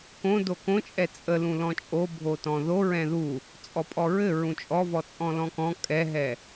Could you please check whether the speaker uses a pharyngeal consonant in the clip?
no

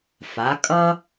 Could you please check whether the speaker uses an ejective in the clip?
yes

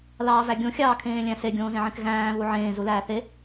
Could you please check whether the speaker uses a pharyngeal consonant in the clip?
yes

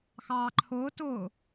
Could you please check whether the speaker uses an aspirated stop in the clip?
yes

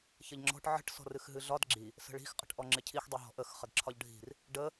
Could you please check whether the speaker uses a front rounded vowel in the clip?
no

